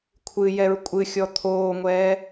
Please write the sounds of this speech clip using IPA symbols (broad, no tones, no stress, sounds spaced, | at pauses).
kʷʰ ɨ j ɛ ɹ kʷʼ ɨ xʲ ɔ t̪ʰ oː ŋʷ ɛː